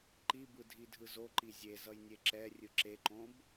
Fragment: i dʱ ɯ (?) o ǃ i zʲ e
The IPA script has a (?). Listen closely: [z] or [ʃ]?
z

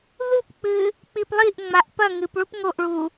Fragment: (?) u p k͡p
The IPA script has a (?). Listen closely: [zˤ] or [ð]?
ð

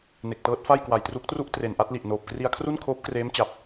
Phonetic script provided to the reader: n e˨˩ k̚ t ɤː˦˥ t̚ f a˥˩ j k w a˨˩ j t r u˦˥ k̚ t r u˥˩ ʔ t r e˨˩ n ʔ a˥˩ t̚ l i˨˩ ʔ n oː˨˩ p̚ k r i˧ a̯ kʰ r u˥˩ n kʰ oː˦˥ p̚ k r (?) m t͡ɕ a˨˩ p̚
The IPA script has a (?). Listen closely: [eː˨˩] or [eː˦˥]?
eː˦˥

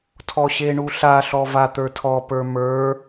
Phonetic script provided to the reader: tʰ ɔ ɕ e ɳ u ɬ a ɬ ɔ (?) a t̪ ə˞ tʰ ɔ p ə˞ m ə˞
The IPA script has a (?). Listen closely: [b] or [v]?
v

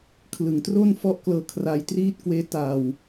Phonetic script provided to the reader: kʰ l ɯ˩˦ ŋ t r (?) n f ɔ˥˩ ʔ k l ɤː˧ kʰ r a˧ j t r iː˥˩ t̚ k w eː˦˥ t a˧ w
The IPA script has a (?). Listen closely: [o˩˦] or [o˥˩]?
o˥˩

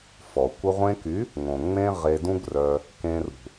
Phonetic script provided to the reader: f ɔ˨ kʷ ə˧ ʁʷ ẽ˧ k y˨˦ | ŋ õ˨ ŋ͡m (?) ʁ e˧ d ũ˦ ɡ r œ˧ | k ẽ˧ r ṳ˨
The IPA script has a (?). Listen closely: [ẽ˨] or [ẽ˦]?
ẽ˦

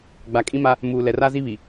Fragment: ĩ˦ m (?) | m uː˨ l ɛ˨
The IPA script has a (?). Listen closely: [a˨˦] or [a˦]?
a˦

